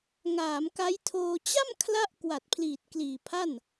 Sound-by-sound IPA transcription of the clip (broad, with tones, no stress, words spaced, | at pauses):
ŋaː˩˦mka˦˥jtʰoː˧ t͡ɕa˥˩mkʰla˦˥ʔ kwa˨˩t̚pʰliː˨˩t̚kliː˨˩pʰa˥˩n